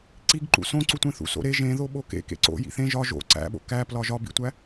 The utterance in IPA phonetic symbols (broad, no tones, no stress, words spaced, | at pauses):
ǀiɡǃṵ sõǀutʷẽθṵ so̰ɾe ʒẽ ðoɓokḛkḛ ǀo̰ jḭθẽ ʒɒ ʒo̰ ǀæ̰ɓo̰ kæplɒ ʒɒbḭtʷæ